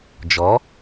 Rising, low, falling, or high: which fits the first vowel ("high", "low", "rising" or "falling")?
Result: rising